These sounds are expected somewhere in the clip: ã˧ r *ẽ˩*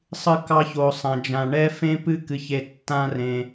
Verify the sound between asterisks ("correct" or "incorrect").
correct